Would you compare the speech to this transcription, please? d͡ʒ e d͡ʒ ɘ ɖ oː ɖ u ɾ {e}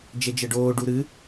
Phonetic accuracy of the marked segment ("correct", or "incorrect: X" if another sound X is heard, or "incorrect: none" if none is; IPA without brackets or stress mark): incorrect: ɨ